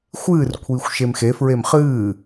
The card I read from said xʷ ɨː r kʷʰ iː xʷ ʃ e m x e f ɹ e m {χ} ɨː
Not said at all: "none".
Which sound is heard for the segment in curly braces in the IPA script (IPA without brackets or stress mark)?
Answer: χ